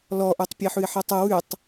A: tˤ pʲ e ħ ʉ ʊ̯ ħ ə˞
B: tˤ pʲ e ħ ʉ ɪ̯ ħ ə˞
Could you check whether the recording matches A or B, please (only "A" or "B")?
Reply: B